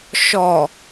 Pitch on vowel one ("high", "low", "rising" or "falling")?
low